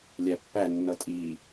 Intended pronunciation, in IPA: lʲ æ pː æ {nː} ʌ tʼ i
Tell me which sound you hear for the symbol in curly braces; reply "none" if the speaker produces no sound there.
nː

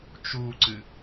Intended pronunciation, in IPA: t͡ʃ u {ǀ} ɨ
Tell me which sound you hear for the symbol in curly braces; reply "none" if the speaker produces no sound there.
ǀ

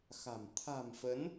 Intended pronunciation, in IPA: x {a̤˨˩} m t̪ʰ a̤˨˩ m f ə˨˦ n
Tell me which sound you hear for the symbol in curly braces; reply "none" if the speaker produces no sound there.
a̤˨˩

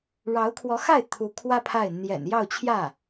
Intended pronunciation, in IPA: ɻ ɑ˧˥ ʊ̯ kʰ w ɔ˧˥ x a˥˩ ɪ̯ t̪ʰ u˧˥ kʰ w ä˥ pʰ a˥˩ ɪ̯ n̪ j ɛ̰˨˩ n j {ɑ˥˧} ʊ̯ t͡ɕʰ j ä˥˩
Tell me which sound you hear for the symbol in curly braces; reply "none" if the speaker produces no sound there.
ɑ˥˧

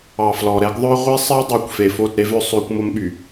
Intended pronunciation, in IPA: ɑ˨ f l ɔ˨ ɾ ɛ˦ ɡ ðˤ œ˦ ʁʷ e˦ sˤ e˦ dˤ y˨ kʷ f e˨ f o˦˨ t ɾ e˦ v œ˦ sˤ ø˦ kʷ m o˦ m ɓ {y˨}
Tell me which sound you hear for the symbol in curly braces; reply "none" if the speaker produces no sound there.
y˨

